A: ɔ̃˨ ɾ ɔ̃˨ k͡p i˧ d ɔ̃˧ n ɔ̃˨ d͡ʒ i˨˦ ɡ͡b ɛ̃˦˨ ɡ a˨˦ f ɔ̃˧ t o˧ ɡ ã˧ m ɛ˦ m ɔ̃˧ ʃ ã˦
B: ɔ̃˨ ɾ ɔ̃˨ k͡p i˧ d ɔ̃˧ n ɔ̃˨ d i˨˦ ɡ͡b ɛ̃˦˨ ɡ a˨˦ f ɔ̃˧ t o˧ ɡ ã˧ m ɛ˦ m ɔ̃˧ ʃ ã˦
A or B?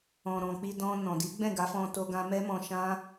B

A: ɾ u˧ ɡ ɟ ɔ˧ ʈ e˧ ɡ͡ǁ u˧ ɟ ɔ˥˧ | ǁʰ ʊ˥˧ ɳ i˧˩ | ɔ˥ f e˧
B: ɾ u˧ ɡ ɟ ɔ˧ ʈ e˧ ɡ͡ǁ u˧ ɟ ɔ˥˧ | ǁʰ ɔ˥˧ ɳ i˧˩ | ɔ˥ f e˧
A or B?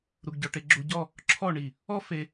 B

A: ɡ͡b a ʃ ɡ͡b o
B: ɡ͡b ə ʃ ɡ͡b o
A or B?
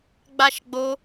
A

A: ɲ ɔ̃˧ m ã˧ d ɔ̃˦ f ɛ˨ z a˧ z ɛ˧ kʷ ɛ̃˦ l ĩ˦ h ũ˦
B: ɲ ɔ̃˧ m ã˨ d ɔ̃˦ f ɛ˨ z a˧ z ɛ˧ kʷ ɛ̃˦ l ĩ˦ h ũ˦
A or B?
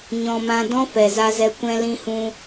A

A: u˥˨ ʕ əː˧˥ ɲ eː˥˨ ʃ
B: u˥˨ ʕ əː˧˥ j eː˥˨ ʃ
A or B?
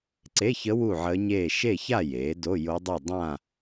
A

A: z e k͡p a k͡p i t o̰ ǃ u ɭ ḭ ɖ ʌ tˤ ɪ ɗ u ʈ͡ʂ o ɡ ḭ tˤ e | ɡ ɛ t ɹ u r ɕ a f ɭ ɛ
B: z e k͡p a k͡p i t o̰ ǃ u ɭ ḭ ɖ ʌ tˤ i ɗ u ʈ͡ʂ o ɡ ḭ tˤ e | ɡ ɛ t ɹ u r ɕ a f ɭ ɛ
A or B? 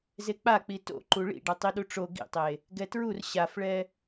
B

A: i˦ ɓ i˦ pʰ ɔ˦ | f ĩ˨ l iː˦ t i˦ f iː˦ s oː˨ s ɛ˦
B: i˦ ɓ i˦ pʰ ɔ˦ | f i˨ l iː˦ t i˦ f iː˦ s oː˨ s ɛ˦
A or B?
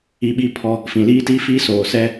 A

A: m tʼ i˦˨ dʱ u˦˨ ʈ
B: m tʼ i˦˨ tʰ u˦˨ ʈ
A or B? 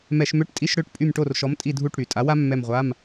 A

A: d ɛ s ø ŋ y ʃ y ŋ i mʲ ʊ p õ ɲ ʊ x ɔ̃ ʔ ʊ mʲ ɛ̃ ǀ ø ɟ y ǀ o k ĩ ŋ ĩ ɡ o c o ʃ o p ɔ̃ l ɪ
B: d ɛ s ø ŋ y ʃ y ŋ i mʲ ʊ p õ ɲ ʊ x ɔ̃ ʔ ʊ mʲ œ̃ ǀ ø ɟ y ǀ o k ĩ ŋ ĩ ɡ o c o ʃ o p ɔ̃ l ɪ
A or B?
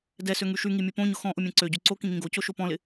A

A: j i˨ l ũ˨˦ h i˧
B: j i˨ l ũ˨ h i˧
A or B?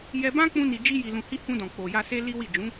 B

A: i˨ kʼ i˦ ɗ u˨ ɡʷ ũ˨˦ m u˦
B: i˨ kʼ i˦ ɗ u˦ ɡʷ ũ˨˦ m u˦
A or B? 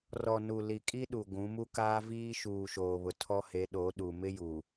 A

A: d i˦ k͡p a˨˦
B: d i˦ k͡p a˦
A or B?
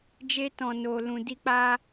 B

